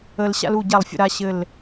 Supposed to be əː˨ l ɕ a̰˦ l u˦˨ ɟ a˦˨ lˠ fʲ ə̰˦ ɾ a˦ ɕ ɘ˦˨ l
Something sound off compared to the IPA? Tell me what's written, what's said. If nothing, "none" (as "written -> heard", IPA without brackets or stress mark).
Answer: none